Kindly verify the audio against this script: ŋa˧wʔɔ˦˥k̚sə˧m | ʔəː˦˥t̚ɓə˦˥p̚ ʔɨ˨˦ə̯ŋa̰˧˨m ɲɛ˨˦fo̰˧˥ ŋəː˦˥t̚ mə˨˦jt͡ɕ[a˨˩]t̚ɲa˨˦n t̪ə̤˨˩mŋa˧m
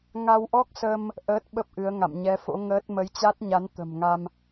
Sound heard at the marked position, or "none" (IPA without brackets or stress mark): a˦˥